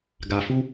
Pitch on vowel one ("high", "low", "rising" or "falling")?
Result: low